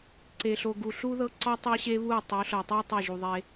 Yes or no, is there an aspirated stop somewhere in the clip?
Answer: no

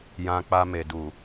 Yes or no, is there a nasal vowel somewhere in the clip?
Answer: yes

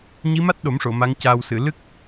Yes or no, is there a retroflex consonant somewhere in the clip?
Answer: yes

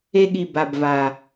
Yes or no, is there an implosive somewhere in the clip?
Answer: yes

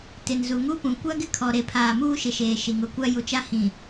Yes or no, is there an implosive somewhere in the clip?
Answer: no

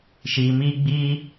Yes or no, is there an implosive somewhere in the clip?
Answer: no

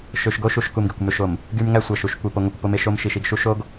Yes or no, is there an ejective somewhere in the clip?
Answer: no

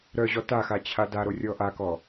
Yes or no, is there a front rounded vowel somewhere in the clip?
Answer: yes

